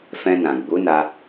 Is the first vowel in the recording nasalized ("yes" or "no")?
yes